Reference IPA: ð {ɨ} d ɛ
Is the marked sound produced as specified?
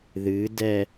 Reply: yes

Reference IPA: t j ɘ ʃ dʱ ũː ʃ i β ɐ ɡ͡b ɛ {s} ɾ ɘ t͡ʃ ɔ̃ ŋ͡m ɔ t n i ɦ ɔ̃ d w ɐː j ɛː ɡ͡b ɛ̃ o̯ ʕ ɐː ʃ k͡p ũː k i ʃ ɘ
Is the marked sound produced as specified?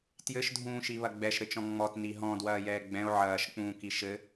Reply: no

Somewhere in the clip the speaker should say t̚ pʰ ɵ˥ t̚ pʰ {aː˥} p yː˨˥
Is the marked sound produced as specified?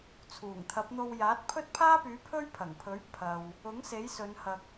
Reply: yes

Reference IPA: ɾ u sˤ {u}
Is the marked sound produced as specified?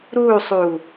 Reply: yes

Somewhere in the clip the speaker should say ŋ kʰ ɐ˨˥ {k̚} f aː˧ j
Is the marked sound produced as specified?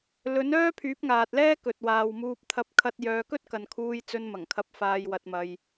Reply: no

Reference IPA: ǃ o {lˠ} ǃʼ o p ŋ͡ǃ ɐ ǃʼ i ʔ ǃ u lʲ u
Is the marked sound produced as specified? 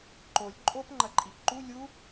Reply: no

